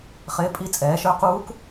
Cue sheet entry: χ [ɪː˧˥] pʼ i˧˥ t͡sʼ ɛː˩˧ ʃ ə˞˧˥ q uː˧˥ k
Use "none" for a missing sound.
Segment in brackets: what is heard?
ɪː˧˥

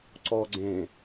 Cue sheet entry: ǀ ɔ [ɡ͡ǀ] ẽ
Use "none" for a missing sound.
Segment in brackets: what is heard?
ɡ͡ǀ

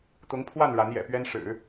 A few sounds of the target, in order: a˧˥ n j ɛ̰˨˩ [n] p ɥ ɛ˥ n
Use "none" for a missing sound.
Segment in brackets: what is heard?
none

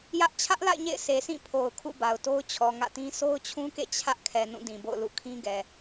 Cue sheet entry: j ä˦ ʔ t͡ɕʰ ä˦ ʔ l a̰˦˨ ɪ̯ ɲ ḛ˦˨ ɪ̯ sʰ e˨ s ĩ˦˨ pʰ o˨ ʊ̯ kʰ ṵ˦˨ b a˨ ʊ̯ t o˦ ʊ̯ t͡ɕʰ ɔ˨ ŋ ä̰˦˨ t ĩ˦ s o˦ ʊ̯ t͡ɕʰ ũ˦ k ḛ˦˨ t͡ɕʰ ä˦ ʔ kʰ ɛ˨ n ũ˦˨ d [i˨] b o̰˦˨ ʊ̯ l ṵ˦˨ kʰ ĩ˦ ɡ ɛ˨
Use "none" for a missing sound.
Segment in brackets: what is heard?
ĩ˨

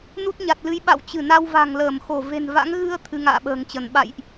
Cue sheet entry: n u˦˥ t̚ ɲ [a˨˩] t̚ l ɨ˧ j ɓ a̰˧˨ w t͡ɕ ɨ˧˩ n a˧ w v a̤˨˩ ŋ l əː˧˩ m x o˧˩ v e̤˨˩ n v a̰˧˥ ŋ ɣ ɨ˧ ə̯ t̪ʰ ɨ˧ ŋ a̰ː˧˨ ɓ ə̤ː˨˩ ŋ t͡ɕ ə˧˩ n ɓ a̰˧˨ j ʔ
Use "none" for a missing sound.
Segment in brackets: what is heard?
a˨˩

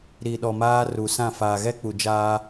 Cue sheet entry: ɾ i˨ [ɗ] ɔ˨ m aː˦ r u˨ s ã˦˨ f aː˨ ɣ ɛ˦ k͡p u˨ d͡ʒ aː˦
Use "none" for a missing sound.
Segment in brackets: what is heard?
ɗ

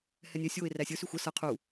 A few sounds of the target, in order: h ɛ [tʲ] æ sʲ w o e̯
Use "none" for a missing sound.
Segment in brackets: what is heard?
nʲ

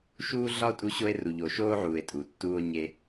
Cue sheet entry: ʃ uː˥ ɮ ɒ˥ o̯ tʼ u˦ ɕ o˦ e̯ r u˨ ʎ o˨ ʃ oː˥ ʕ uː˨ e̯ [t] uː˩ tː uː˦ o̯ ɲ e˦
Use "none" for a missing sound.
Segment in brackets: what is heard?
tʼ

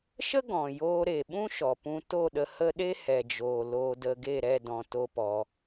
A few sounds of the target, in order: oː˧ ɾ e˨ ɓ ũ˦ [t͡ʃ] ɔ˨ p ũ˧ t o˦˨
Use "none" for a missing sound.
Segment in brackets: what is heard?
ʃ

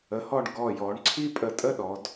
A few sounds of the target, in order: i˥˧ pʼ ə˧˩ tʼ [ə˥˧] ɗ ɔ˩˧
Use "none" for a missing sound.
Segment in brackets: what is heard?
ə˥˧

